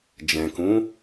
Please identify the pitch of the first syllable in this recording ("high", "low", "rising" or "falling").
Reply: low